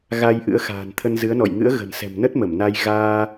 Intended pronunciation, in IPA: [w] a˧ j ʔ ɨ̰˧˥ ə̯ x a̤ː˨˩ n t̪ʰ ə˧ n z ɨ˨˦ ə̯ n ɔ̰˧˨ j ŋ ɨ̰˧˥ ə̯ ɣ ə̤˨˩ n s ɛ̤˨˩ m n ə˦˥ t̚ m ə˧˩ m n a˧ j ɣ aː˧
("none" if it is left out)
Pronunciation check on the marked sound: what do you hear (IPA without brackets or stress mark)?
ɣ